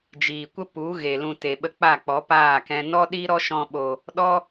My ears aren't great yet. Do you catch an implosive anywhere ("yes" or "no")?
yes